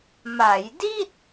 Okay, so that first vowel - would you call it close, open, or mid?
open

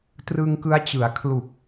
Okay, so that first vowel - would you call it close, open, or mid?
close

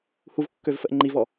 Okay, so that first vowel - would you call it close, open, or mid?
close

